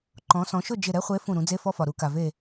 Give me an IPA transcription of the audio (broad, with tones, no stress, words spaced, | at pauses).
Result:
ǃɔ̃˩˧ sɔ̃˩˧ʃʊ˥˨d͡ʒɪ˧˩ ɾɛ˦χʷe˨˥ fũ˧˩ɾũ˩˧d͡ze˦fɔ˦ fɒ˩ɾu˩˧ka˩ ve˧˩